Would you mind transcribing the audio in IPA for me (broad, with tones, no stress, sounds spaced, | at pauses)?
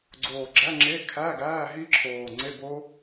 ɡ͡ǀ oː˨˩ ɡ͡ǁ æ˧˥˧ ŋ͡ǁ e˧˥˧ kʰ æː˧˥˧ ɡ æː˧˥˧ ɦ i˦˥ ǁʰ oː˨˩ ŋ͡ǀ e˧˥˧ b o˦˥